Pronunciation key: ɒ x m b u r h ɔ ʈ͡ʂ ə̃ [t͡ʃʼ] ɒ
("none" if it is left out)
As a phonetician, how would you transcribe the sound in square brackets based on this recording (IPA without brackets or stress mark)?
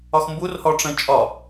t͡ʃʼ